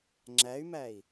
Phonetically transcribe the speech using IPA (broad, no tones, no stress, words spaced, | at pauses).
ŋ͡ǁæy̯mæi̯